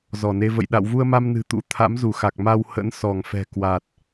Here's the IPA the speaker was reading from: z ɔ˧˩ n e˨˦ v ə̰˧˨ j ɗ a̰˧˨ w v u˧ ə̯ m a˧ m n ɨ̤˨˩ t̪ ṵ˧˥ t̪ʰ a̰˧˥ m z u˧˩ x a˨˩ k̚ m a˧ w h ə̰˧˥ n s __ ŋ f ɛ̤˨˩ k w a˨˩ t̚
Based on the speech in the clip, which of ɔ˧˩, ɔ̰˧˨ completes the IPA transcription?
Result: ɔ˧˩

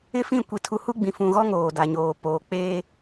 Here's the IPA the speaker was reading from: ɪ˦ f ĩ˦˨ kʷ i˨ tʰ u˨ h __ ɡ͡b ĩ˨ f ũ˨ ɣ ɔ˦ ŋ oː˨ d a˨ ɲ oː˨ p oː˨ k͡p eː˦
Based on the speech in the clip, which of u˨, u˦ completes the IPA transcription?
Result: u˦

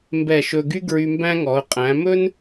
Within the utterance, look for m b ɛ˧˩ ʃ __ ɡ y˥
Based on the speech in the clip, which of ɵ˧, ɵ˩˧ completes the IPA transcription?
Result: ɵ˧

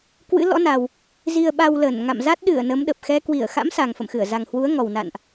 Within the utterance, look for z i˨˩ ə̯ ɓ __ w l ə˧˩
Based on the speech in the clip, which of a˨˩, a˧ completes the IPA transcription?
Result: a˨˩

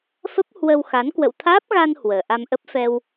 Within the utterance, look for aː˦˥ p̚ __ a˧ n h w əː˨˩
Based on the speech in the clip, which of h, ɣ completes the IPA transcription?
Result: ɣ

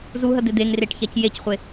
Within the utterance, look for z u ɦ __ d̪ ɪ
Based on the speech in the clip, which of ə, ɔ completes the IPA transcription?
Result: ə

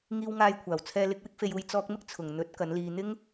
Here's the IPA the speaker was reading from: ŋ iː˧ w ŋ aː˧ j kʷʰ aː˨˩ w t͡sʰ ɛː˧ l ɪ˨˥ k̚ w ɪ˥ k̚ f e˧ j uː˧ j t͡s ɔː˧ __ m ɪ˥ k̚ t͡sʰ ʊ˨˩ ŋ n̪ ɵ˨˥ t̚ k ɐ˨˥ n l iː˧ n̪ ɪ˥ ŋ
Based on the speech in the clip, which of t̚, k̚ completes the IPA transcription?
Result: k̚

